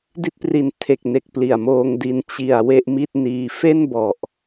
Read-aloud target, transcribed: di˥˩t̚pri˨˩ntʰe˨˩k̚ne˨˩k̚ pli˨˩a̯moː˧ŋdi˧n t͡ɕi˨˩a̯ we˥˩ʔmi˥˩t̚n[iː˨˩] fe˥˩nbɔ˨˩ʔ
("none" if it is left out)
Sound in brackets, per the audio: iː˧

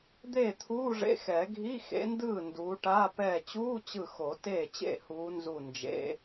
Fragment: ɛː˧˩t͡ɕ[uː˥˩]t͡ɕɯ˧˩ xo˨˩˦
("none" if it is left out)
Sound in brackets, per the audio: uː˧˥˧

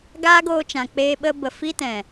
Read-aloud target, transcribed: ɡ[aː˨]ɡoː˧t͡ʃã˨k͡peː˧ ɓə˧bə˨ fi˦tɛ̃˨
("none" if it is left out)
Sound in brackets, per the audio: aː˦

